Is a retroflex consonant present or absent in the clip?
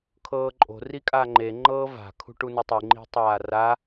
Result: present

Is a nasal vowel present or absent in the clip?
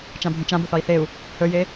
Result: present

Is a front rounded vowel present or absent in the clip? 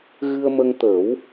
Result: absent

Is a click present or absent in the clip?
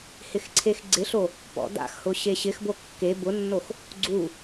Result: present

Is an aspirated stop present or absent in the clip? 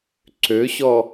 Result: absent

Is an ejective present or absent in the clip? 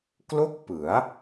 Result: absent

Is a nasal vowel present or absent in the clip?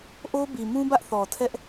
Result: present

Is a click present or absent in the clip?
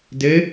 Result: absent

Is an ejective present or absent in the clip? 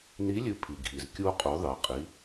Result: present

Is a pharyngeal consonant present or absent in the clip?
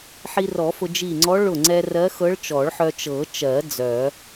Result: present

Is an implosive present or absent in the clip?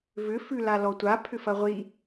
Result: absent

